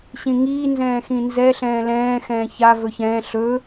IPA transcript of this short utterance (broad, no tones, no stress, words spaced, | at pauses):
ɕĩŋiː nzɛ̃ːxĩnzɛ ɬɛ̃ːlɛ̃ː xɛ̃ːça vɵçɛ̃ː ɬɵ